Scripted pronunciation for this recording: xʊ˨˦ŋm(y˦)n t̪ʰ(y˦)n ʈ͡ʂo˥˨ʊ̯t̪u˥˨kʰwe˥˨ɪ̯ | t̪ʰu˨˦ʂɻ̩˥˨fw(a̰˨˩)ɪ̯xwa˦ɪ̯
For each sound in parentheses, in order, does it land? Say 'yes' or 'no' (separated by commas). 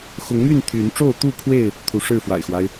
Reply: no, no, yes